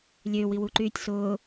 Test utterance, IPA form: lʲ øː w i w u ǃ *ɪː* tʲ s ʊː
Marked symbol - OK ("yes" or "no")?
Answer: no